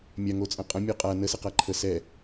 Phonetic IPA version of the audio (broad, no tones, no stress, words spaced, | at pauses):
mʲaŋot͡sʼɐ̃ qʼɐ̃mʲœ qʼa nəsɐqa ǃʰə sɛ